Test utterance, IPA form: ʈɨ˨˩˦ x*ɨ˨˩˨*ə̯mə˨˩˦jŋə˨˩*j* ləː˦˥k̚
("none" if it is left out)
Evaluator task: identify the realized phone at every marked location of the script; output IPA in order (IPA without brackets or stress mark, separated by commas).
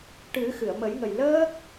ɨ˨˩˨, j